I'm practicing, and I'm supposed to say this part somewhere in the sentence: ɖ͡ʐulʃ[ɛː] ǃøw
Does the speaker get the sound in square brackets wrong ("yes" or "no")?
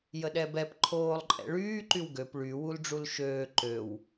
yes